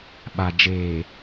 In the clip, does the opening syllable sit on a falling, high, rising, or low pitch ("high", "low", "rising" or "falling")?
low